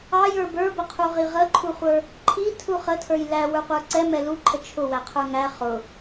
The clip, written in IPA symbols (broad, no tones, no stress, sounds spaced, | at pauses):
ɑ j ə˞ b ə˞ b ə qʰ u ʁ i ʁ ə ǃʰ u χʷ ə˞ | ǃʰ i tʰ u χ ə tʰ ə˞ j l æ w ə˞ qʷ ə˞ ǀ ɛ m ɛ l u ǃʰ ə t͡ʃʰ ʊ w æ qʰ ə˞ ŋ æ χ ʊ